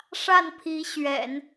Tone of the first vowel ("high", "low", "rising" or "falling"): falling